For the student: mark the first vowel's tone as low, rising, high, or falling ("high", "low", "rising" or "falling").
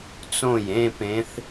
falling